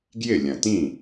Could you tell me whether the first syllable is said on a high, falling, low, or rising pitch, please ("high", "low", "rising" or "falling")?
falling